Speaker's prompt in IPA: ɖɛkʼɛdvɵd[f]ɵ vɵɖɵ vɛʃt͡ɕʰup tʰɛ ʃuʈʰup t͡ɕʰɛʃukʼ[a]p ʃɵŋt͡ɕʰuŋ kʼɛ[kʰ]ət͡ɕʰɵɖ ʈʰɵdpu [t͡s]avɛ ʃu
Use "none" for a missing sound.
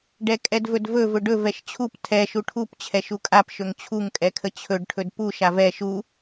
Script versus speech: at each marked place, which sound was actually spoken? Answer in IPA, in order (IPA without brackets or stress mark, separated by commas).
v, a, kʰ, ʃ